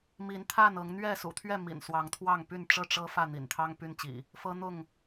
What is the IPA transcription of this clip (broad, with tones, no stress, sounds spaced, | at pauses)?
m i˨˦ n t̪ʰ a˥˨ n ɤ˨˦ ŋ n̪ ɥ ɛ˥˨ s ṵ˨˩ t̪ʰ ɥ ɛ˥˨ m ḭ˨˩ n s w ɑ˨˦ ŋ t̪ʰ w ɑ˥˨ ŋ p y˥˨ n ʈ͡ʂ ɤ˥˨ ʈ͡ʂ ɤ˦ f ä˥˨ n̪ ḭ˨˩ n t̪ʰ ɑ˦ ŋ p y˦ n t͡ɕ ḭ˨˩ | f ɤ˦ n̪ ʊ˥˨ ŋ